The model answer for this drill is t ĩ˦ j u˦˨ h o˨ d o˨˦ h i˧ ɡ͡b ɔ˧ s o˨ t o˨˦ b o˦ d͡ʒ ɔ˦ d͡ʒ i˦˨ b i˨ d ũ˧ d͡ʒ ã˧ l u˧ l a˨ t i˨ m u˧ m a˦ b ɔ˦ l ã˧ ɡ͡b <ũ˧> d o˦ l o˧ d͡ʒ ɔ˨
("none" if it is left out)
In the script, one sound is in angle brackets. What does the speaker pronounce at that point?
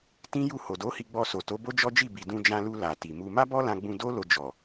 ũ˧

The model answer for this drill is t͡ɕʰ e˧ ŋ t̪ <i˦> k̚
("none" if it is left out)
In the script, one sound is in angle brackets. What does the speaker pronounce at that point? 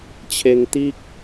i˦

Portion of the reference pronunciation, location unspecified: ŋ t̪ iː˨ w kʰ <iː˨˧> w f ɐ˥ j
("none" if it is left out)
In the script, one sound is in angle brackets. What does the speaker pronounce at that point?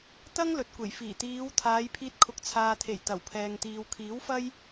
iː˨˥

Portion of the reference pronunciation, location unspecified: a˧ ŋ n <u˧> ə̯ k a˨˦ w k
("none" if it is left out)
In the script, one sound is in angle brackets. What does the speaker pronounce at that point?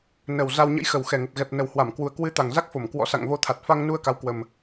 u˧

